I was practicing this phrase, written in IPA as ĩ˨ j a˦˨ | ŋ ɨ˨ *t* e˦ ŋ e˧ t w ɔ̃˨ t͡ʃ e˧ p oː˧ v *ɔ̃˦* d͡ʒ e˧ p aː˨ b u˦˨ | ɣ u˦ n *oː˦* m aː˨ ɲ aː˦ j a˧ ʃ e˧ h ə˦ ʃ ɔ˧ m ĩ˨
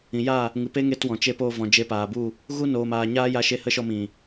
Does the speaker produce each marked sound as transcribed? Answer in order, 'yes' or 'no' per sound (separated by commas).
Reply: no, no, no